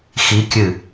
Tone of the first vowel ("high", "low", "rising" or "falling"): rising